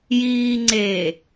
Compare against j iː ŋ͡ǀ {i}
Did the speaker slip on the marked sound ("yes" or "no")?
yes